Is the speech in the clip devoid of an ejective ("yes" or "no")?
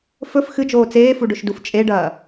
no